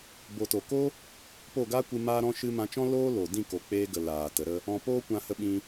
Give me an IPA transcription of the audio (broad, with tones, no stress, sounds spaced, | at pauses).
b o˨ t o˨ k o˦ | p o˦˨ ɡ aː˦ kʷ ɨ˧ m aː˦ ɾ ɔ̃˦ ʃ ɨ˧ m ã˧ t͡ʃ ɔ̃˦ l oː˦ l o˨ d ĩ˦˨ k o˨ k͡p eː˧ ɡ ə˨ l aː˨ t ə˨˦ ɾ ə˦ | ɔ̃˧ p oː˦ kʷ ã˧ h ə˧ ɓ ĩ˧